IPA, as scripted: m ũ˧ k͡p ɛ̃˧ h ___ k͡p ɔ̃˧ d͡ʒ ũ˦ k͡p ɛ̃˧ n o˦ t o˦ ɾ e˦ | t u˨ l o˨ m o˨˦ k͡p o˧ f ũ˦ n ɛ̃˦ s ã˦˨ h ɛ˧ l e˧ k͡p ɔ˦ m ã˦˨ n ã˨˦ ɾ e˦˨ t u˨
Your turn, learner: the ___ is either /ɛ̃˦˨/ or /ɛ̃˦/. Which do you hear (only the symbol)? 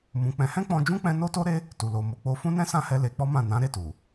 ɛ̃˦